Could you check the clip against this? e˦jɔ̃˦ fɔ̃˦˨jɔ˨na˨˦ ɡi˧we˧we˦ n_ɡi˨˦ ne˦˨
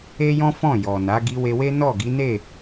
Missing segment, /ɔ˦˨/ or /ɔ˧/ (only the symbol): ɔ˦˨